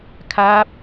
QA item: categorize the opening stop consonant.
aspirated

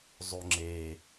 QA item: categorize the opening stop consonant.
click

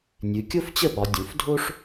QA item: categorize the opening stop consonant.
plain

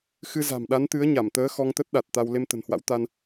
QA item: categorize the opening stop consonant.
implosive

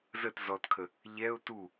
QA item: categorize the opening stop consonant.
plain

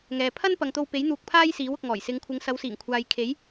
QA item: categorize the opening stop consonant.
aspirated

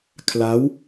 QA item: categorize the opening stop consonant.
aspirated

